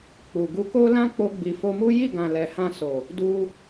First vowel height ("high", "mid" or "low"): high